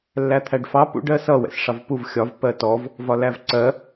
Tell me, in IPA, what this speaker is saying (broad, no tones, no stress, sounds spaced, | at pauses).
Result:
lː æ t̪ʰ æ ɖ f ɑ p ṵ ɖ ɜ s ʌ w ɛ̰ s ʂ ɑ v p u v xʲ ɒ v p ɜ t ɔ v | v ɒ l æ v ǀ ɜ